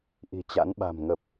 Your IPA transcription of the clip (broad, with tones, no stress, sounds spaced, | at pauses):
ʔ i̤˨˩ t͡ɕ a̰˧˥ n ɓ a̤˨˩ m ŋ ə˨˩ p̚